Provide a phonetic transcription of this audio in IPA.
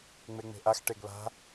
ŋ͡m e ŋ͡m e̤ ʔ a x ʈ e ɡ β a̤

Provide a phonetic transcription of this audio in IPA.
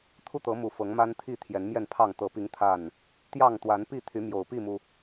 t̪ʰ u˥˨ t̪ ɤ˨˦ m u˨˩ f ɤ˨˦ ŋ m a˦ n t̪ʰ i˥˨ t̪ʰ j ɛ˨˦ n m j ɛ˥˨ n pʰ ɑ˥˨ ŋ t̪ ɤ˨˩ p i˨˦ ŋ t̪ʰ a˥˨ n | t̪ j ɑ˥˨ ŋ t̪ w a˨˦ n p i˥˨ t̪ʰ y˨˦ m j o˨˩ ʊ̯ p i˥˨ m u˩

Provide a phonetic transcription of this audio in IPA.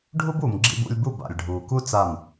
ɖʱ u˦ b uː˨ m ɡ͡ǁ ḭ˧ b ṵ˧ lʲ b u˦˨ b a̰˨ lʲ ɖʱ uː˨ k u˦ t͡s a˦˨ m

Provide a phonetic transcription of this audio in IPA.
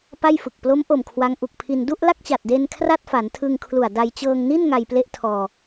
p a˥˩ j f ɯ˨˩ k̚ p l o˦˥ m ʔ o˨˩ m kʰ w a˦˥ ŋ ʔ u˨˩ k̚ pʰ i˧ n d u˥˩ ʔ l a˥˩ k̚ t͡ɕ a˨˩ t̚ d e˧ n kʰ r a˥˩ t̚ f a˩˦ n tʰ ɯ˧ ŋ kʰ l u˨˩ a̯ d a˧ j t͡ɕ ɤː˧ ŋ n i˥˩ n ŋ a˧ j p l e˥˩ ʔ tʰ ɔː˧

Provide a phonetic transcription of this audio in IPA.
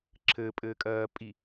ǁʰ ɘ pʼ ɘː kʼ ɜː pʼ i

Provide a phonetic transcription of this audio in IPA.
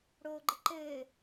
ɽ oː ɡ͡ǃ ɘ ǃ ɘː

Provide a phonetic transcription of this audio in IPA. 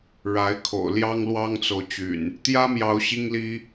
ɻ a˨˦ ɪ̯ kʰ o̰˨˩ ʊ̯ l j ɑ˦ ŋ l w ɑ˦ ŋ t͡s o˨ ʊ̯ t͡ɕ y̰˨˩ n | t̪ j ä˦ m j ɑ˨˦ ʊ̯ ɕ i˦ ŋ l i˦

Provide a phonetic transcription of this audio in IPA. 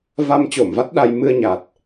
v a˧ m t͡ɕ o˧˩ m v a˦˥ t̚ ɗ a˧ j m ɨ˧ ə̯ ɲ a˨˩ t̚

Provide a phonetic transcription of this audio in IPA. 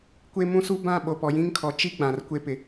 kʷ e˦ m ũ˦ s u˦ b ã˦˨ ɓ o˨ p ɔ˨ j ĩ˦ ŋ kʰ ɔ˨ t͡ʃ i˦ ɡ͡b ã˨ r kʷ e˦ p ɪ˨

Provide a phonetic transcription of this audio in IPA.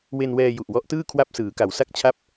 w e˧ n w ɛː˧ j u˨˩ ʔ w ɔ˦˥ ʔ t ɯː˥˩ kʰ w a˥˩ p̚ s ɯː˩˦ k a˩˦ w s a˥˩ k̚ t͡ɕʰ a˥˩ p̚

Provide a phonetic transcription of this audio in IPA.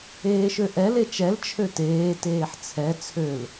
eː ʃ ø ʔ ɛ l e t͡ʃ ɛ l t͡ʃʰ ø t eː t eː ħ t͡sʰ ɛ t͡sʰ ø l

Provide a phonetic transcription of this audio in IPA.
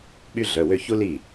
ɓ y˥ ɮ œ˩˧˩ w ø˥˧ ç u˥ l i˥˩

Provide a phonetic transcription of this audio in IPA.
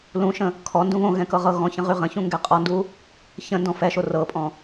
l ũ ʃ ə̃ | kʰ ɔ n d ũ β õ ɣ ɛ̃ k ɤ ʁ ɤ ɣ ɔ̃ ç ə̃ ʁ y ʁ ə̃ ç ũ ŋ ɡ ɛ qʼ ɔ n d u | ç ə̃ n d ɔ̃ f ɛ ʃ o r ɤ pʼ ɔ̃

